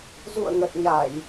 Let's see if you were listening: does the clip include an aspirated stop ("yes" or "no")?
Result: no